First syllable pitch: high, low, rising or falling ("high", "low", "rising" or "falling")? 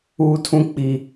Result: low